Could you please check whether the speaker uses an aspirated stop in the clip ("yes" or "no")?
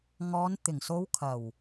yes